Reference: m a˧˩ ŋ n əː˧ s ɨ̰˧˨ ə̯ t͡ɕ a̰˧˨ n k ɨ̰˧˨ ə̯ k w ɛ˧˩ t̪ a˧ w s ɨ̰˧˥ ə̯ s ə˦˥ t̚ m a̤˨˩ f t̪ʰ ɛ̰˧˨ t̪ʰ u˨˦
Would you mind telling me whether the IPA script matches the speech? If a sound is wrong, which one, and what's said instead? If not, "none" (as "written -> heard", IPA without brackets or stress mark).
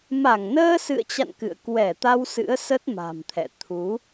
f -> m